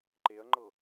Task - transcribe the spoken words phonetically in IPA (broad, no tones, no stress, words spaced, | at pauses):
ǃeɐ̯ŋ͡ǃɤ